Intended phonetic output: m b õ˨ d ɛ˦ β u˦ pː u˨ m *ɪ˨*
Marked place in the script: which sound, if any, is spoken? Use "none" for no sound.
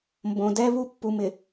ɪ˨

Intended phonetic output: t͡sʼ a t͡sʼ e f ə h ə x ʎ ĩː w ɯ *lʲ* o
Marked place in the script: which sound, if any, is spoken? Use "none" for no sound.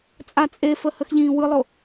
lˠ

